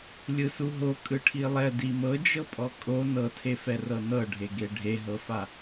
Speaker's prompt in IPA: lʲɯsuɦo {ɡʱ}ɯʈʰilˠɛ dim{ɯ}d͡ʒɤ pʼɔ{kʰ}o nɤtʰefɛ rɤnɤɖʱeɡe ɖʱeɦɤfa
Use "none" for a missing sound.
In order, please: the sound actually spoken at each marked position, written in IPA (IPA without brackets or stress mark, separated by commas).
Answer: kʼ, ɤ, kʼ